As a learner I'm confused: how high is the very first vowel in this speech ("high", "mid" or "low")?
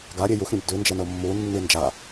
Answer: low